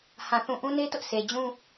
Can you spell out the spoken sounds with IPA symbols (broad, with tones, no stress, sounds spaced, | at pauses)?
h ã˨ θ ũ˨ ʔ ũ˦ n e˦ t ʊ˦ ʔ sʰ e˨ d͡ʑ ũ˦